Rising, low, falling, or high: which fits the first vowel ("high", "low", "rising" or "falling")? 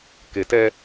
low